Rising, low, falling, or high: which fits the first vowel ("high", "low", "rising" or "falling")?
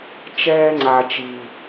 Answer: high